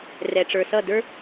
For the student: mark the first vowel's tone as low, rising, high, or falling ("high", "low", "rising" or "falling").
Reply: low